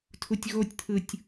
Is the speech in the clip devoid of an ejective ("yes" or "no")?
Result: yes